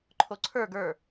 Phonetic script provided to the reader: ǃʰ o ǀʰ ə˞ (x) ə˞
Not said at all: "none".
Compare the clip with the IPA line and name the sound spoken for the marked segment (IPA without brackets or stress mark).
ɡ